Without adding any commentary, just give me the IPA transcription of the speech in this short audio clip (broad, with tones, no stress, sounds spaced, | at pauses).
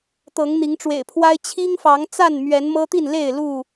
t̪ ɤ˨˦ ŋ n̪ i˨˦ ŋ ʈ͡ʂ w ḛ˨˩ ɪ̯ pʰ w a˦ ɪ̯ t͡ɕʰ i˦ ŋ f ɑ˨˦ ŋ t͡s a˥˨ n m ɥ ɛ˨˦ n m ɤ˦ t̪ i˥˨ n l e˥˨ ɪ̯ l u˥˨